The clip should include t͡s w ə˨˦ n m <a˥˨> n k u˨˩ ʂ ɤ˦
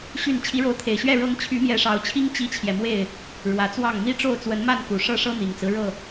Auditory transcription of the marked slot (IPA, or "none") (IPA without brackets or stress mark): a˥˨